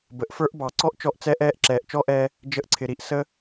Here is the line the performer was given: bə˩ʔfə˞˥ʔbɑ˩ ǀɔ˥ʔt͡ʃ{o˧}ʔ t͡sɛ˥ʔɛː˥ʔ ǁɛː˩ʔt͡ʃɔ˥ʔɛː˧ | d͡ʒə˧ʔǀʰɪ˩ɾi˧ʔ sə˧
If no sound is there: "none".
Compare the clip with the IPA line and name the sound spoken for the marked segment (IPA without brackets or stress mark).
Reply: ɔ˧